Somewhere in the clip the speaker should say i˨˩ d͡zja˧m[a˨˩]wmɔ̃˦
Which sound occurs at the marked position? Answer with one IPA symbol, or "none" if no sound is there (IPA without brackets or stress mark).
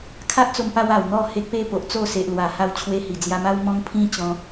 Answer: a˦